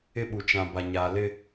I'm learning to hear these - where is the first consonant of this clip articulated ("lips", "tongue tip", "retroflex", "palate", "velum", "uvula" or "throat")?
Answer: lips